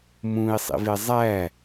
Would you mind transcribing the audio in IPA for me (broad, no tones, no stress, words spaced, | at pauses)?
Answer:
mũi̯sˤḭve zˤæ